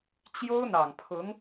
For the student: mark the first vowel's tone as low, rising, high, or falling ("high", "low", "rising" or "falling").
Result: high